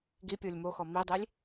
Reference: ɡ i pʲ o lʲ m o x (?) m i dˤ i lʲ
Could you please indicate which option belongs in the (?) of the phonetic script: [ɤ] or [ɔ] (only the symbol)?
ɔ